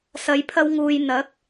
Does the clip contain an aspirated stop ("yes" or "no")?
yes